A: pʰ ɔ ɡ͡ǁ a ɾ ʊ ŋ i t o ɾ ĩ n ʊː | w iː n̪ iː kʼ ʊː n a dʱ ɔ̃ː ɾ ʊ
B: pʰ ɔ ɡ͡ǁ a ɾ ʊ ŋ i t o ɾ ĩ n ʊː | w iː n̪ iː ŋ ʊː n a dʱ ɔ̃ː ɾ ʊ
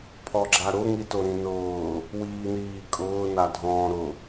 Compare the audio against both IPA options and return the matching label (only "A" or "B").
A